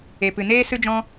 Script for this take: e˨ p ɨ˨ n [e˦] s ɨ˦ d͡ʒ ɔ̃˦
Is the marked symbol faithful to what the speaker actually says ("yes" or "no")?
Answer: no